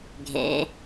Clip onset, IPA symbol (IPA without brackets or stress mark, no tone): ɡʱ